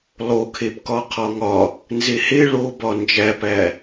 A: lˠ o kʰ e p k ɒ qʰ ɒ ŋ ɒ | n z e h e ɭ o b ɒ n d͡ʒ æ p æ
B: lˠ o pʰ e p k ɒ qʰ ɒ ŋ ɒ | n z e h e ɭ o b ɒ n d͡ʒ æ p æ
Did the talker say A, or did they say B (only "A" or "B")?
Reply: A